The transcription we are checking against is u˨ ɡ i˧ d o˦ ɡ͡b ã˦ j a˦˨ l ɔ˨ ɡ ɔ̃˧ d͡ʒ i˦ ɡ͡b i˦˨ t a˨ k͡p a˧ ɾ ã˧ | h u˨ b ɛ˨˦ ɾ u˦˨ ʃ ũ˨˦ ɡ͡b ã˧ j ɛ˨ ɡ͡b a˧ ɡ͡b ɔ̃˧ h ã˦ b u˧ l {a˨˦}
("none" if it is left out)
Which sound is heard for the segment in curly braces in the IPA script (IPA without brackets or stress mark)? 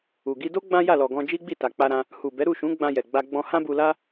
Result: a˦